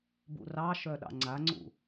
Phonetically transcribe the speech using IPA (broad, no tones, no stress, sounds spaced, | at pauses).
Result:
b ṵ r ɑ ʃ œ ɗ ɑ̰ ŋ͡ǀ a ŋ͡ǀ ṵ